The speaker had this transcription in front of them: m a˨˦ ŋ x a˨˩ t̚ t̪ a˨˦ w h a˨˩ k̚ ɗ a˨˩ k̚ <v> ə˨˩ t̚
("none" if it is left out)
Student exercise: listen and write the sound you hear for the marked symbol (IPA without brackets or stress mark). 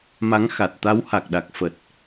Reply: f